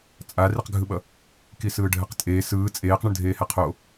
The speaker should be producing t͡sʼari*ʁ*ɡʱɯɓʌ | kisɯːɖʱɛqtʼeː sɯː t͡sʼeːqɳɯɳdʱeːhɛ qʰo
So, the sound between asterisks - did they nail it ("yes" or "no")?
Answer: no